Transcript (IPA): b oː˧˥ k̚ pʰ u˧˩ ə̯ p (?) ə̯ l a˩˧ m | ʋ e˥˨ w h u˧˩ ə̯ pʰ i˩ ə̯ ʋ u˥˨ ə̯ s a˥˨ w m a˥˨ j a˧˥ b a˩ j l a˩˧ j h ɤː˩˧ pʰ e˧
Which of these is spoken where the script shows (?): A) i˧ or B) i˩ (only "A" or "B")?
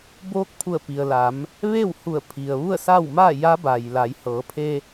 B